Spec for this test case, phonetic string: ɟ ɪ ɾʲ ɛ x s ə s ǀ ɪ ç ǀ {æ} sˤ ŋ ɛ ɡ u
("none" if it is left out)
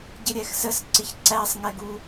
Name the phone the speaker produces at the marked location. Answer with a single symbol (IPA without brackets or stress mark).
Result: æ